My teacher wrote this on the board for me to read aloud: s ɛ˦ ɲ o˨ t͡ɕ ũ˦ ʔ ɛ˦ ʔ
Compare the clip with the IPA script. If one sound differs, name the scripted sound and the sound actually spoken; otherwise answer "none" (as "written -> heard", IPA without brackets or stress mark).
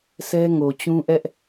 ɲ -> ŋ